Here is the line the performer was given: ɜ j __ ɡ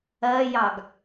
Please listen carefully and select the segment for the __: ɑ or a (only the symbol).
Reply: ɑ